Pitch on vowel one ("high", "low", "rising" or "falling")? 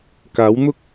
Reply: rising